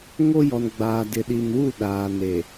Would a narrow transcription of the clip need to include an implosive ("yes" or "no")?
yes